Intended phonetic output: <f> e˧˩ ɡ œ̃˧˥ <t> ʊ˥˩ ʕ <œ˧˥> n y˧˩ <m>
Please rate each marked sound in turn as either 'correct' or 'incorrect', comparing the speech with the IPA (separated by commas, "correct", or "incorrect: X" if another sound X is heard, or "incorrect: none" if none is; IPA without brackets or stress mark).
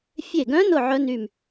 incorrect: fʲ, incorrect: n, correct, correct